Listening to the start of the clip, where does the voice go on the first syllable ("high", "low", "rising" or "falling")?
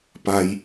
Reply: low